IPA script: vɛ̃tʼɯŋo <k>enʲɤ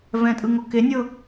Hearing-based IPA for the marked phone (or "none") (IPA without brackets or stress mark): k